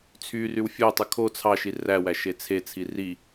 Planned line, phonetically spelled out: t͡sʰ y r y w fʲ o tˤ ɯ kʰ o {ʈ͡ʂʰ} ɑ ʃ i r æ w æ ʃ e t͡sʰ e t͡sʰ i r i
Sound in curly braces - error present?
yes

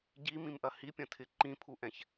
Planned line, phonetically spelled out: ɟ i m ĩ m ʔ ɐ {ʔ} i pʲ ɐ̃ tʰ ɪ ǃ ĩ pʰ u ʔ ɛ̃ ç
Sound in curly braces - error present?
yes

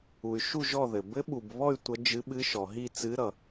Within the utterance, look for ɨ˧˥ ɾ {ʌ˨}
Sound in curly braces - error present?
no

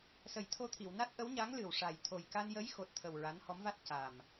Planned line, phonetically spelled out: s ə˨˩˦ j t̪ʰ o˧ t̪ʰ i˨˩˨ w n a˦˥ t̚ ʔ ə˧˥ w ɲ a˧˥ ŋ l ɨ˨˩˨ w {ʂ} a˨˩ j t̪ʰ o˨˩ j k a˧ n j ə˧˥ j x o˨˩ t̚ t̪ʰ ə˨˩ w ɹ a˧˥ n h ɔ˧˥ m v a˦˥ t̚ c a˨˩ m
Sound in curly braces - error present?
no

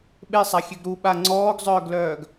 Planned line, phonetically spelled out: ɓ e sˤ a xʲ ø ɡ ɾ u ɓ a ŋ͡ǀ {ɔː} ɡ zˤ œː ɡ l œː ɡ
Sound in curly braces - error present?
no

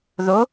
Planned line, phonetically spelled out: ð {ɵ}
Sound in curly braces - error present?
yes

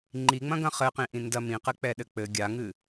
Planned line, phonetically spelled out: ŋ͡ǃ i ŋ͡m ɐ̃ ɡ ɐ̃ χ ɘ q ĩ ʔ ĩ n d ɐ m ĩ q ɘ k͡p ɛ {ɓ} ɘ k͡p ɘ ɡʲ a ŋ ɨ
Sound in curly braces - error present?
yes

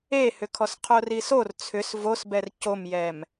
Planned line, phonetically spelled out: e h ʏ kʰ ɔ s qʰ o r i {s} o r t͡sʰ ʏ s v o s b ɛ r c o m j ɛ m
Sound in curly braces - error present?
no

